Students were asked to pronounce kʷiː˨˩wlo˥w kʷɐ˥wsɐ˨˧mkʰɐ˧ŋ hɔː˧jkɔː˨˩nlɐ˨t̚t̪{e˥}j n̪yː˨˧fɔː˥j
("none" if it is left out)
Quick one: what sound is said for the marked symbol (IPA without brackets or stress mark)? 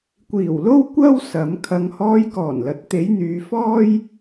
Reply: e˨˧